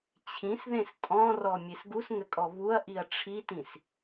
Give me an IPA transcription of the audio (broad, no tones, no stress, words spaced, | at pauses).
t͡ɕʰĩsðẽs tʼɔ̃rɔ mʲesɡusŋɘkʼɔ βuɐ̯ ʔiɐ̯ʈ͡ʂʰitĩs